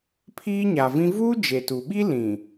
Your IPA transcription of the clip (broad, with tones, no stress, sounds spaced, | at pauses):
pʰ iː˦ ɲ a˨ v ĩ˦ v uː˦ d͡ʒ e˨ t u˨ ɓ i˦ l ĩ˨